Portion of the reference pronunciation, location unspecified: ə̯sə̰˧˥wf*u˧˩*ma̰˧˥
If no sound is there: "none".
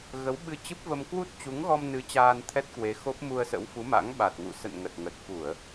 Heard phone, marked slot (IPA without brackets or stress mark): u˨˦